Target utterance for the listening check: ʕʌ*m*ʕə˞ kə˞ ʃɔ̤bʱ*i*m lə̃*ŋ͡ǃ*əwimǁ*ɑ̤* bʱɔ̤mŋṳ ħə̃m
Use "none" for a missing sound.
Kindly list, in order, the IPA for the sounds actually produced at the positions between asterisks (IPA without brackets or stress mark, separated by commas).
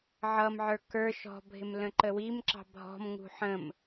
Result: m, ɪ, ǃ, ɑ̤